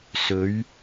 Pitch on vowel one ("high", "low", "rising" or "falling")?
rising